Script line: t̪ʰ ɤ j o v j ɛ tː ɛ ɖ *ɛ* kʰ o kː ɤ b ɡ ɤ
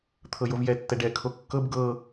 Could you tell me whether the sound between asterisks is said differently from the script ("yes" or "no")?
no